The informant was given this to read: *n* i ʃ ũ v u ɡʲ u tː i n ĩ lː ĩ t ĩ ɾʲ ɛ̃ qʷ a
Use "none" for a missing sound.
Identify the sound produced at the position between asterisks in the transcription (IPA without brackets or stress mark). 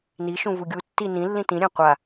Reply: n